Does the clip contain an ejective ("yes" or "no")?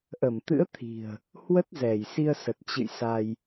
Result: no